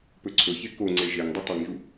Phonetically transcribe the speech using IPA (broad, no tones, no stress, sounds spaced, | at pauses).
p ɵ ǀʰ ɵ ç e k o ŋ͡ǀ e ʒ e ŋ dˤ ɨ tˤ ɨ ŋ ʒ u